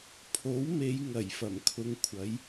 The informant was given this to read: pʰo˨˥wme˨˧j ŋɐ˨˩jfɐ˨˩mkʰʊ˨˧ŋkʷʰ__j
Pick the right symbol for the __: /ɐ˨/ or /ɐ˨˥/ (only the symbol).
ɐ˨˥